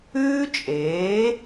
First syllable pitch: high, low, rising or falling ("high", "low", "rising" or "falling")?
high